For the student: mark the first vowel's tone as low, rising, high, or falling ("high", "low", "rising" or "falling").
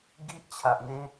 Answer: high